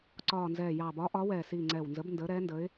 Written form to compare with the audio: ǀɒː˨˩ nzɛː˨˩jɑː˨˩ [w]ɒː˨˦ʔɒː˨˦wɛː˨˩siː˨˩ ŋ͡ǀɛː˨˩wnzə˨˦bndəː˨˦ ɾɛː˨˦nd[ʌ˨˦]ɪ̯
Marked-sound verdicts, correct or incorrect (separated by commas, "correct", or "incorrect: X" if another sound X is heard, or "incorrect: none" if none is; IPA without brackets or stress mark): incorrect: b, incorrect: ə˨˦